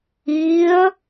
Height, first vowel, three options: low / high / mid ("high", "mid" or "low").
high